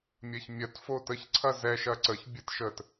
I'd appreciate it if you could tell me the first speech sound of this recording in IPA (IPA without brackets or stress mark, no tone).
mʲ